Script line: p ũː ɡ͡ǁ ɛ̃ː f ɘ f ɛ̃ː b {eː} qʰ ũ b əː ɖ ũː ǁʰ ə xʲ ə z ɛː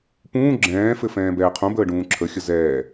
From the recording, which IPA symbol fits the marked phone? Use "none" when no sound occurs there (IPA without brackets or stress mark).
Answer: ɛː